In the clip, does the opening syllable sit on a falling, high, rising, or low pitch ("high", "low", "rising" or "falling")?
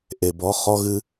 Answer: low